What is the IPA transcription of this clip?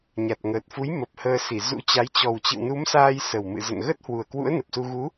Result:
ɲa˨˩t̚ŋəː˨˩t̚fu˨˦j mə˨˩p̚həː˧si˧˩ zṵ˧˥t͡ɕa˨˦j t͡ɕɔ˨˩wt͡ɕɨ̰˧˨wnu˨˦msaː˧j sə˨˩wmɨ̰˧˨zə̰˧˨n ɣə˦˥t̚hwu˨˩ə̯kwṵ˧˥ə̯ nə˨˩p̚su˧ ɣu˨˦

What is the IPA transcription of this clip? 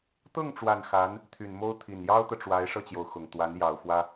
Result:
t̪ɤ˥˩ŋʈ͡ʂwa˨˩n xa˧˥n | t̪ʰy˨˩n mo˥ʊ̯ t̪ʰi˨˩njɑ˥ʊ̯t̪ɤ˨ʈ͡ʂwa˧˥ɪ̯ ʂɤ˥˩t͡ɕjo˩ʊ̯ xʊ˨˩ŋt̪wa˧˥n jɑ˨˩ʊ̯fwä˥

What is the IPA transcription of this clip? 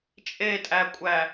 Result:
t͡ʃʼetʼækʷʼæ

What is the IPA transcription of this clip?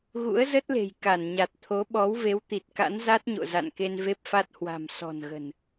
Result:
ɣṵ˧˥ə̯zə˦˥t̚le̤˨˩j ka˧˩nɲa˨˩t̚ t̪ʰo˨˦ɓɔ˨˦wve˨˦w t̪i˨˩t̚ka̰˧˥n za˦˥t̚ɲo̰˧˨ za̰˧˨nke˧n ve˦˥p̚fa˦˥t̚hwa̤˨˩m sɔ̤˨˩nɣə̤˨˩n

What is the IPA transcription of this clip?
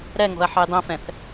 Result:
ɾɛŋo̤ɐ̯ ħɯjdˤɛ̃fɛ̃θ

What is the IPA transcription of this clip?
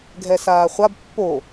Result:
ɡʱɛsaːχʷab pːo

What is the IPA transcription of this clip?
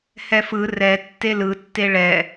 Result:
hɛfɯ rɛ tːelɯ tːeɭɛ

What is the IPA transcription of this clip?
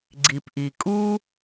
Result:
ɡ͡ǀi˩pʔi˩kʼu˥

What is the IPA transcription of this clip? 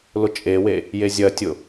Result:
lʊt͡ʃʼewe | jezʲɐtʲʊ

